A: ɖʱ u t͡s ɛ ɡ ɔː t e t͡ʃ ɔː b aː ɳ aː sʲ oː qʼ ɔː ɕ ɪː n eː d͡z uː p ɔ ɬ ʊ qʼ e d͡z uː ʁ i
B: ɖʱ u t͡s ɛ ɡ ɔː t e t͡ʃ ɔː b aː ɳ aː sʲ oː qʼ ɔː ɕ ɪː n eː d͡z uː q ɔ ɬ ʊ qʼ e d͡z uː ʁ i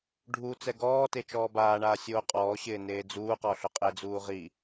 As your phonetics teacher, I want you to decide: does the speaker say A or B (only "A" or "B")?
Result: B